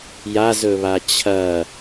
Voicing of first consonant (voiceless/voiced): voiced